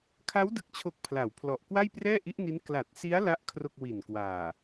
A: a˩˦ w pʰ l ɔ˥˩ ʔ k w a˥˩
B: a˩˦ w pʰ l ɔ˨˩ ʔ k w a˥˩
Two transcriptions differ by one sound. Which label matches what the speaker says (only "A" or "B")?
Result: B